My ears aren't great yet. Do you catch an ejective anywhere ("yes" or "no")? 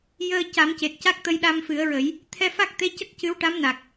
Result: no